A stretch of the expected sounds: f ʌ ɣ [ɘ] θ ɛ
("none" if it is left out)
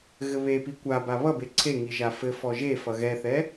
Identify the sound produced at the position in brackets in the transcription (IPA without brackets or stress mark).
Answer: ɛ